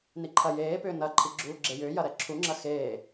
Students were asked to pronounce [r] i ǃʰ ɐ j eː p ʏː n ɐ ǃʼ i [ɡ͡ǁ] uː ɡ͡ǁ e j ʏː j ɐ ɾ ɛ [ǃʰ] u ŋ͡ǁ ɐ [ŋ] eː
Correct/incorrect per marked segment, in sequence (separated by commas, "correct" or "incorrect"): incorrect, correct, incorrect, incorrect